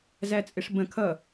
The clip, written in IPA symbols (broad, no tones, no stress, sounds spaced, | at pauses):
z æ t͡sʼ ɪ ʂ b ə̃ kʰ ʌ